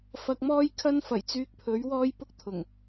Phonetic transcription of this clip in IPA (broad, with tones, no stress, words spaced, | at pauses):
fɐ˧k̚mɔː˥j kʰɐ˥nfɐ˨˩jt͡syː˧k̚pʰɵ˨˥ɥ wɔː˥jpʊ˥k̚t̪ʰʊ˨˩ŋ